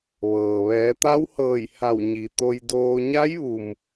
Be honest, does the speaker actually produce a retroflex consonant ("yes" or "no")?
no